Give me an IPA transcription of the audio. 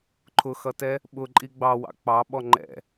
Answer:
ǃʰ ʊ x ʌ t ɛ | ɓ ʊ ǃʼ i ɡ͡b ɑ w ɑ̰ k͡p ɑ ɓ ɔ ŋ͡ǃ ɛ̰

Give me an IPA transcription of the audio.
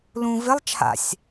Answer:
l ũ v ɪ lˠ t͡ʃʰ a̰ sʲ

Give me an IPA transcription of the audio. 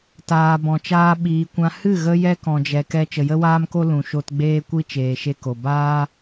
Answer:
t aː˨ b ɔ̃˨ t͡ʃ aː˧ ɓ iː˨ kʷ ã˧ h ɨ˦˨ ɣ ə˧ j ɛ˦ k ɔ̃˧ d͡ʒ ɛ˧ k ɛ˦ t͡ʃ ə˨ j ə˦ w aː˦ m k o˦ l ũ˨ ʃ o˧ t ɡ͡b eː˦ kʷ i˦ t͡ʃ eː˨ ʃ e˧ k o˨ b aː˦

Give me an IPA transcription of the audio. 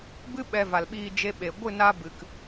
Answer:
b ɨ˦ ɓ ɛ˧ v a˨ l ɓ iː˧ d͡ʒ e˦ ɓ e˨ ɡʷ ɨ˦˨ n a˧ b ɨ˨ k

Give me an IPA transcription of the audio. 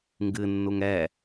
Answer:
ŋ ɡ ɨ nː u ŋ ɛ

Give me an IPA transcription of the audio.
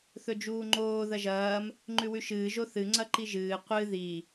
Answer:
θ ɵ d͡ʒ uː ŋ͡ǃ oː ð ɐ ʒ ɐː m | ŋ͡ǃ ʉ w ʉ ʃ ɨː ʒ o θ ɨ ŋ͡ǀ ɐ ǃ i ʒ ɨː qʷ ɨ ð i

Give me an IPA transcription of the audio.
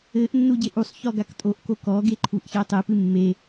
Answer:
ɘ ʔ nː u ɟ e ʔ u sˤ ç ɔ ɡ a k tʼ o ʔ k o k ɔ ɡ e ǃʰ u ʔ ç ɛ tˤ e p ɨ mː e

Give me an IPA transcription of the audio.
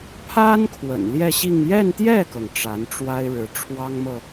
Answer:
pʰ a˥ n kʰ w ə̰˨˩ n l j ɛ˥˧ ɕ i˥˧ ŋ j ɛ˥˧ n t̪ j ɛ˥˩ k ɤ˩ ŋ ʈ͡ʂ a˧˥ n ʈ͡ʂ w a˥ ɪ̯ ɻ ɻ̩˧˥ ʈ͡ʂʰ w ɑ˥ ŋ m ɤ˨

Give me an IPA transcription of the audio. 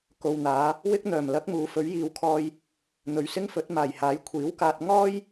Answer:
k o˨ w n̪ aː˨˧ | w ɪ˥ k̚ n̪ œː˨˩ m l ɐ˨˥ k̚ m uː˨˥ f ɵ˨˥ ɥ j iː˨˧ w kʰ ɔː˧ j | n̪ ɵ˨ ɥ s ɪ˥ ŋ f ɵ˨˥ t̚ m aː˨˩ j h aː˨˥ j kʷʰ iː˨˥ w k aː˧ t̚ ŋ ɔː˥ j

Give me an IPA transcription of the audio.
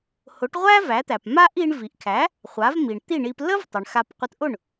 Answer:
h ʊ˩˥ ʈ ʁʷ æ˥ v æ˩˥ t̪ æ˩ p m a˥ ʔ i˧ ɳ v i˩ ʔ kʰ æ˩˥ | χʷ a˩˥ v m i˩ ɳ t̪ i˥˩ ɳ i˧ p l ə˥ v tˤ ə˩ ɳ x a˧ p qʷ ə˧ t ʔ ʊ˥˩ ɳ

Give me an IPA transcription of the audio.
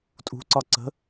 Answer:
tʼ ṳ ǀ ɒ ǀ ə̤

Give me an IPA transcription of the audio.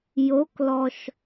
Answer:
j o k l ɔ ʃ

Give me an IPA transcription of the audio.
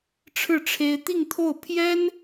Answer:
ʈ͡ʂʰ ɻ̩˥˩ ʈ͡ʂʰ e˥ ɪ̯ t̪ i˥˧ ŋ t̪ʰ o˥˩ ʊ̯ pʰ j ɛ˥ n

